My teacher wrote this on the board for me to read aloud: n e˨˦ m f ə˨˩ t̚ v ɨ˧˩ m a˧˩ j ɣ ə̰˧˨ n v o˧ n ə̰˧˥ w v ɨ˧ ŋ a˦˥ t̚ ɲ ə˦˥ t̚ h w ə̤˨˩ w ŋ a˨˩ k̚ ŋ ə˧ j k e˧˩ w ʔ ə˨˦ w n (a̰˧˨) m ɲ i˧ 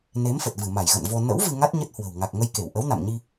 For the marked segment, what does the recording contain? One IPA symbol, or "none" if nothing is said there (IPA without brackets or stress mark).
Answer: a̰˧˨